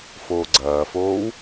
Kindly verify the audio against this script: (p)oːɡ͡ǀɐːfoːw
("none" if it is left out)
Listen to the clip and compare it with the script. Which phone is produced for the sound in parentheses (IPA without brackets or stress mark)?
f